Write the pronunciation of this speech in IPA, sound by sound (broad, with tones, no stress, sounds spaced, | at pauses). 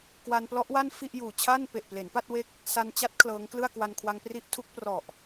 k w a˧ n p l ɔ˦˥ ʔ w a˥˩ n f i˥˩ ʔ j uː˨˩ t͡ɕʰ a˥˩ n p e˨˩ ʔ p l e˩˦ n p a˥˩ t̚ w e˦˥ k̚ | s a˧ n t͡ɕ a˦˥ t̚ kʰ l ɤː˦˥ ŋ k l ɯ˥˩ a̯ k w a˧ n kʰ w a˧ ŋ p r i˦˥ ʔ tʰ u˦˥ k̚ p r ɔ˨˩ ʔ